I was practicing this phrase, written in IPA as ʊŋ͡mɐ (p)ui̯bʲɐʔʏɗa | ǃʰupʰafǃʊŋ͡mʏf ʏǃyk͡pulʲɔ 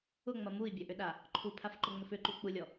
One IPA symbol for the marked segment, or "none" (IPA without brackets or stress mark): m